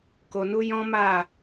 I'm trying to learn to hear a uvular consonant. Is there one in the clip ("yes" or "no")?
no